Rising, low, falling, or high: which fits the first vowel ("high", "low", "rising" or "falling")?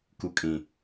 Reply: low